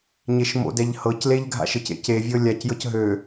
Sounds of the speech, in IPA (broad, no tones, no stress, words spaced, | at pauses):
ɲeʃmo̰dɛʎ hɤcleʎ ɡʱa̰ʃɘcḛ cevʲɤ lʲacjɤc ɦø